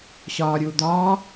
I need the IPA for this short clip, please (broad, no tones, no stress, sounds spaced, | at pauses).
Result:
ɕ ɒː ɾʲ uː d̪ ɒː